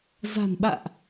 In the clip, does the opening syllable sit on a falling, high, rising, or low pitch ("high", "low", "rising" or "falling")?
low